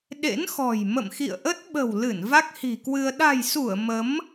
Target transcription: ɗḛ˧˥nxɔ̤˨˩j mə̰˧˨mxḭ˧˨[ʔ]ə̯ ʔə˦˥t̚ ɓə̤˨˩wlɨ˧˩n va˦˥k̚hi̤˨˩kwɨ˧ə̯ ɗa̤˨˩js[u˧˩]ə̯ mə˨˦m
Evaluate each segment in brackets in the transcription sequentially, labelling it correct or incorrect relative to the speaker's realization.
incorrect: none, correct

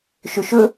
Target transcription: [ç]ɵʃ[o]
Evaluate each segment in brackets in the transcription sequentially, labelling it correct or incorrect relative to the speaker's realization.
incorrect: ʃ, incorrect: ɵ

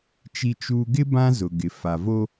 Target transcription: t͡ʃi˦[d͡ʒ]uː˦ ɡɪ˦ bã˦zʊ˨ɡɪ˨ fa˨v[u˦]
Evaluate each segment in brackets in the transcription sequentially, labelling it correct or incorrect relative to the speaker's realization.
incorrect: t͡ʃ, incorrect: o˦

